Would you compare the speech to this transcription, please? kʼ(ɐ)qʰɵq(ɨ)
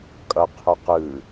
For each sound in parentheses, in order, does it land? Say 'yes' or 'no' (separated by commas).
yes, yes